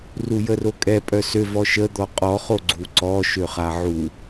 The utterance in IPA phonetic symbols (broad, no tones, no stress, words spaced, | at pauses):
rujərokʼɛ pʼœsø vɔʃə d̪ɔqʼɔ χoɡ͡ǀuǀɔ ʃøχaʕu